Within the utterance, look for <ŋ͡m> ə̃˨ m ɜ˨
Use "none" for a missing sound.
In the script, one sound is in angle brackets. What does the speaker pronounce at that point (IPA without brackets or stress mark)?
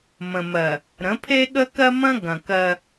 m